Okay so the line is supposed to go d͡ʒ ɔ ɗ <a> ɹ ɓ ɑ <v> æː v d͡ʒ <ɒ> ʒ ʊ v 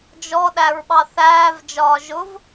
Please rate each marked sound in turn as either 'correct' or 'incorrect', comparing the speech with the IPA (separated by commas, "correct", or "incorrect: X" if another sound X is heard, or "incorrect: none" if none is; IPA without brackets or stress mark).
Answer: incorrect: æ, incorrect: θ, incorrect: ɒː